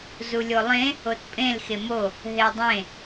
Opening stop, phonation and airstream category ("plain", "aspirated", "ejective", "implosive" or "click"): plain